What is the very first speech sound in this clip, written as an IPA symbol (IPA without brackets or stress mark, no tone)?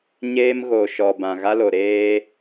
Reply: ɲ